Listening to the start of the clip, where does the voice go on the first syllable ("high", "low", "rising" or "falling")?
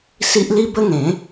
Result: high